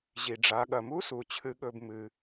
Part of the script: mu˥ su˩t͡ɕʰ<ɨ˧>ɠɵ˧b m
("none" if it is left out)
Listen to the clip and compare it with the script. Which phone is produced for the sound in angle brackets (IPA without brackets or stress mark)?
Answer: ɨ˧